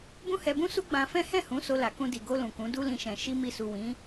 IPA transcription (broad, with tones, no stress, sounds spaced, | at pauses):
b ũ˦ h ɛ˧ b ũ˦ s u˦ ɡ͡b ã˧ f ɛ̃˦ h ɛ̃˦˨ h ũ˨˦ s o˧ l a˨ k ũ˧ d i˨ ɡ o˧ l ũ˨ k ũ˨˦ d u˦ l ĩ˧ ʃ ɛ̃˨ ʃ i˧ m i˧ s u˨ w ĩ˨˦